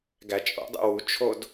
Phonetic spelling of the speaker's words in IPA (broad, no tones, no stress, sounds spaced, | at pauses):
ɡ æ t͡ʃʼ o̰ dˤ ḛ w u t͡ʃʰ o d